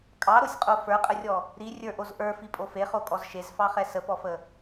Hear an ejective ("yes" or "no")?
yes